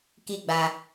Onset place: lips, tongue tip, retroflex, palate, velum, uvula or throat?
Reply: velum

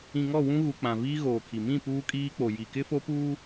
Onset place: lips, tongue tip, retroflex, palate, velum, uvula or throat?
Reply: velum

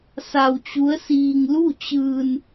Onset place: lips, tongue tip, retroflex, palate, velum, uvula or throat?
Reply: tongue tip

